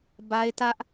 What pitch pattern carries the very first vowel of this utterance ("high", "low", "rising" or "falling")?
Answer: high